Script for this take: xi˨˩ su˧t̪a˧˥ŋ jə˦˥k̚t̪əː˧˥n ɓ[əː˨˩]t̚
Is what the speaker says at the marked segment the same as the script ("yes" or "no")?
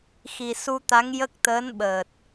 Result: yes